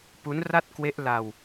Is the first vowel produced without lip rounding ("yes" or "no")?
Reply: no